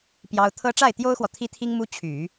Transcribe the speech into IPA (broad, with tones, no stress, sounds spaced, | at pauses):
p j ɑ˥ ʊ̯ t̪ʰ ɤ˥ ʈ͡ʂ a˥˩ ɪ̯ t̪ j o˥ ʊ̯ x w ɔ˨ t̪ʰ i˥ t̪ʰ i˥ ŋ m u˥ t͡ɕʰ y˨˩˦